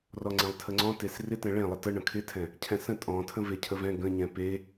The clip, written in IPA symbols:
r ɔ ŋ͡ǀ ɛ̃ lˠ tʰ ə ŋ͡ǀ ɔ̃ t e s r ɪ t ɛ̃ ɭ ẽ lˠ ə t ə ɳ ə̃ kʰ ɪ tʰ ɛ̃ | cʰ ɛ̃ s ə̃ tʼ ɔ̃ tʰ ə̃ v e cʰ ə v ɛ̃ ɡ ə̃ ɲ ɛ̃ p e

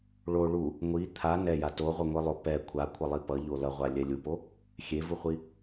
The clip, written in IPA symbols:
ɭ o ɭ u | ŋʷ i t̪ʰ a n ɛ j a t o ʁʷ ʌ ŋʷ i lˠ o p ɛ kʷʰ a kʷʰ ʌ lˠ i p ʌ ʎ o l ʌ ʁʷ a lʲ ɛ lʲ u p o | xʲ e v u χʷ i

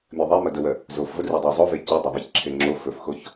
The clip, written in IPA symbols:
mʲ ɐ ðˤ e m ɐ d ə w ɜ | z o f v ə d r i dˤ ɜ zˤ o v e c i dˤ ɜ ðˤ i ç ǁʰ e ŋ͡ǁ o f ɵ f x o ç

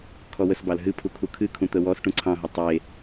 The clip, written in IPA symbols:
kʰ ɔ w ə s b ɑ l ɦ ɨ pʰ u kʰ u kʰ ɨ kʰ ũ t̪ ə w ɔ s ʈ ũ ǀʰ ɑ̃ ɦ ə tˤ e

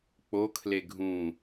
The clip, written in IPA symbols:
k͡p o kʰ l e ɡʱ ũ

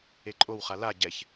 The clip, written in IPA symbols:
e ǃʼ o w χ a l a ɟ ɛ ç

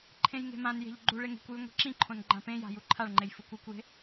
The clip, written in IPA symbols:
ǃʰ ẽ j ŋ e̤ m ã n j e̤ ʎ ɡ͡ǃ u ɭ e ŋ e̤ kʷ j ʉ ŋʷ i̤ ǁ ĩ ǃʰ õ n ɡ͡ǃ ã p ẽ j a̤ j u ǃʰ a ɭ ŋ͡ǃ e j f u kʷ ʉ kʷ j e̤

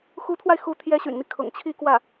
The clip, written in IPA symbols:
x u˧˥ t̪ʰ w a˧ ɪ̯ x u˧˥ t̪ʰ j ɛ˧˥ ɕ y̰˨˩ n n̪ i˦ kʰ ʊ̰˨˩ ŋ t͡ɕʰ i˥˧ k w ä˥˩

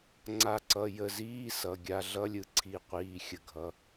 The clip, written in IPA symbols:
ŋ͡ǀ a˧˩ ǀ ʌ˩˧˩ j ə˧˩ z iː˧˥˧ s ʌ˩˧˩ ɡʲ a˧˩ ɮ ʌ˧˥˧ lʲ ɯ˩˧˩ ǀʰ i˧˩ qʷ iː˩˧˩ xʲ ə˧˩ ɡʱ ʌ˩˧˩

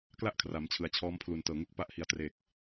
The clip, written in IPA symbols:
k l a˥˩ ʔ kʰ r a˩˦ m t͡ɕʰ ɯ˩˦ a̯ t͡ɕʰ ɔː˦˥ m pʰ l u˨˩ n t ɤː˨˩ ŋ u˦˥ k̚ p a˦˥ ʔ h i˨˩ a̯ t r e˨˩ k̚

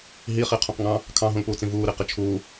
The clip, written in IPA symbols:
ɦ i χ i qʰ ũ q ŋ ɑ̃ | kʰ ɑ̃ ɦ ũ l p uː t͡s ĩ v uː ɾ i q ɪ t͡ʃʰ uː

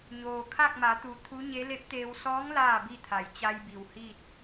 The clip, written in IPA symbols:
ɲ oː˩ kʰ a˥˨ k̚ m a˩˧ t̪ u˩˧ t̪ʰ u˧˥ ɲ e˧˥ l e˧˥ p̚ t̪ eː˧ w s ɔː˧˥ ŋ l aː˥˨ b i˥˨ t̪ʰ a˩˧ j t͡ɕ a˧ j b i˩ w h iː˥˨ t̚

